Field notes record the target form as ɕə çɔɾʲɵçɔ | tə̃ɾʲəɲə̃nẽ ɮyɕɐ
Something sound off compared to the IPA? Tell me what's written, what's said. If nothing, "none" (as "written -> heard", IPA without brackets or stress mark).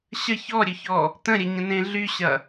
none